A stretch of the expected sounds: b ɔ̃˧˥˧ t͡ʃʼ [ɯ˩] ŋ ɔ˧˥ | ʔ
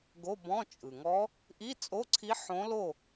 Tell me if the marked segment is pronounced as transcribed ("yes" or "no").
yes